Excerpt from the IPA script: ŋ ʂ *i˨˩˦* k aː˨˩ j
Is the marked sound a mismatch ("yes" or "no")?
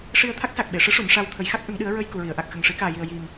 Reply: no